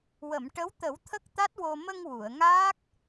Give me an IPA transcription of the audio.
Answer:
wə˨˩˨mʈə˧˥w t̪ə˨˩˦w t̪ʰə˦˥k̚t̪a˦˥t̚wo˧ mə˧ŋ wu˨˩˨ə̯ŋaː˦˥k̚

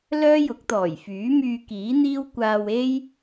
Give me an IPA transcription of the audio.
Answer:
lœː˥jʊ˨˥k̚t̪ɔː˨˩jfyː˨˥ myː˧kiː˨˥n̪iː˥wkʷaː˧w e˥j

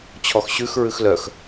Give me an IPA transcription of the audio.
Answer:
t͡ɕʰɔxɕʉx ɹʉxlœx

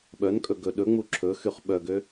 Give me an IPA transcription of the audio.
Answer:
ɓœnkʼɵ ɡɵɗɵŋ͡mu ǁʰɵ xyχɓœɡø

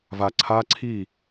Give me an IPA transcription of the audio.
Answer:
va ǀʰa ǀʰi

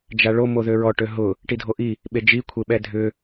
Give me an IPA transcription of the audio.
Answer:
d͡ʒaɭo moðøɹɔ ʈøɦʊ | ʈidʱoʔi | ɓed͡ʒi kʷʰeɓɛdʱʏ

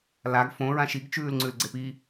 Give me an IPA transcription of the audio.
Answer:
laɡ fõ ɹãʃiɡ t͡ʃʉːlŋ͡ǀʉlɡ͡ǀepi

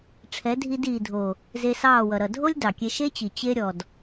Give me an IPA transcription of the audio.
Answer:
ʈ͡ʂʰɛ˨˦dʱi˧diː˨dʱo˨ | ze˧sɑː˦˨wʌ˨ ɾʌ˨ dʱo˦lʲ dɑ˨kʲe˧ ʃe˦t͡ɕi˨ t͡ɕe˧ɾʲɔ˨d

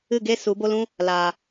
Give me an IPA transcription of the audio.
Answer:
ɨ˦˨ɡe˦ su˨˦bo˦lũ˦ | laː˨

